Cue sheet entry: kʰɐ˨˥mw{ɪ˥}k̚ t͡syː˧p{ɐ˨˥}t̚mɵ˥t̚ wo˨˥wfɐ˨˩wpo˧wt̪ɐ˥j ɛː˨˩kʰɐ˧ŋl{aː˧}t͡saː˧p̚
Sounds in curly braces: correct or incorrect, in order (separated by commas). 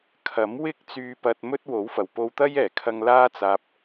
correct, incorrect, incorrect